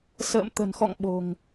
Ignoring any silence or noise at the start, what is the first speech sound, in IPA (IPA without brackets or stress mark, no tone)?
s